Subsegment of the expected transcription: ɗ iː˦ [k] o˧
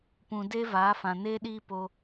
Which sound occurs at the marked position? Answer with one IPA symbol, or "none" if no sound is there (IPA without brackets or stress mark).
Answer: p